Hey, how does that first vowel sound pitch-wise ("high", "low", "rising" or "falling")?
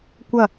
falling